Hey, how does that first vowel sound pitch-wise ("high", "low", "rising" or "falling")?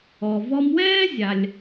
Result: low